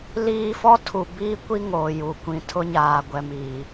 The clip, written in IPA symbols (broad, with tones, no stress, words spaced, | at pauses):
liː˦ fɔ˦ tʰu˨biː˦kʷi˦ ŋoː˨ju˨ kʷĩ˨tʰʊ˦ɲaː˨ɡʷɛ˨m iː˨